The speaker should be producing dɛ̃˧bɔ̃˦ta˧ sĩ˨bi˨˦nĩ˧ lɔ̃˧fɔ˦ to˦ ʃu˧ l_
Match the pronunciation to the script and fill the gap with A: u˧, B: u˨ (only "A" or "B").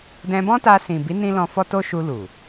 B